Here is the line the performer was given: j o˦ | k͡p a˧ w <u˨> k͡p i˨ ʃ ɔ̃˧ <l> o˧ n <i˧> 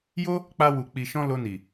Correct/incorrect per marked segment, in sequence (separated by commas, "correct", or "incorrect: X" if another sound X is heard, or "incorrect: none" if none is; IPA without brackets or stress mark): correct, correct, incorrect: i˨